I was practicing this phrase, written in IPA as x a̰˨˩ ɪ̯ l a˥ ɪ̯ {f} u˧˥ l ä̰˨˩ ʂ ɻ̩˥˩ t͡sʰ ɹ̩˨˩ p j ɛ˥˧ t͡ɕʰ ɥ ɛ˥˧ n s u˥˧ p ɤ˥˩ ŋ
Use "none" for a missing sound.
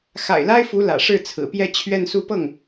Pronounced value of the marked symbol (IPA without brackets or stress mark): f